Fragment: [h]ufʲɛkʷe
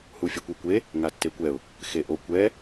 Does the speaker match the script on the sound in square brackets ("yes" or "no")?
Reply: yes